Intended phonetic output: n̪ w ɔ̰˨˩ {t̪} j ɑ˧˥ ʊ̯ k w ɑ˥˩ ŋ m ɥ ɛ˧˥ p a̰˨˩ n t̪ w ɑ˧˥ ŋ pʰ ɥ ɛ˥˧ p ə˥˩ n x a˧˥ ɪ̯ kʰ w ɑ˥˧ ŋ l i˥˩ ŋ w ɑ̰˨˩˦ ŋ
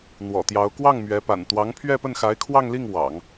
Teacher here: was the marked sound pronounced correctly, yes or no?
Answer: yes